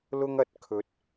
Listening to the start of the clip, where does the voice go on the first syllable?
high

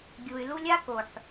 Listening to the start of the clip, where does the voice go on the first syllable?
low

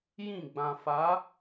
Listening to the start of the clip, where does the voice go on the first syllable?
falling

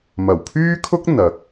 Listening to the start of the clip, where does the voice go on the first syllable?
low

